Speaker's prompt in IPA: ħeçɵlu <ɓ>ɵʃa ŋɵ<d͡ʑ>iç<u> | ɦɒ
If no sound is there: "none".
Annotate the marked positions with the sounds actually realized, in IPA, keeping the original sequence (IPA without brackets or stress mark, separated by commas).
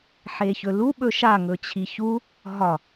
ɓ, t͡ɕʰ, u